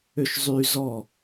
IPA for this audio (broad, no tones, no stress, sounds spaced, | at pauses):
ø ʃ zˤ y z ɔ